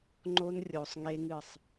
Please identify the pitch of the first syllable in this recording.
high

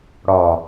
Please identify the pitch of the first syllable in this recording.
low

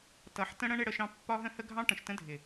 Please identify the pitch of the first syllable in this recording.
rising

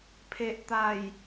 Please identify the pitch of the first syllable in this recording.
low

